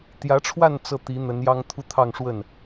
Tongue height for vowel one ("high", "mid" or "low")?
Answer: low